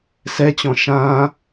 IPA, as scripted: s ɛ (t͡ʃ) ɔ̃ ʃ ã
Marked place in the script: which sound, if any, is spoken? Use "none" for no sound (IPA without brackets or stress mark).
t͡ɕ